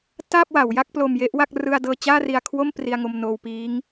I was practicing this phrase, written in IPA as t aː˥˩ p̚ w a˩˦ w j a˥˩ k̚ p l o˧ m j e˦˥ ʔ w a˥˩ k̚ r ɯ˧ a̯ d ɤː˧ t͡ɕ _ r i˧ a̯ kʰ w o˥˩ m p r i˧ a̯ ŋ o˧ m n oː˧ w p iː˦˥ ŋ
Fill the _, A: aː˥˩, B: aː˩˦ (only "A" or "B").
A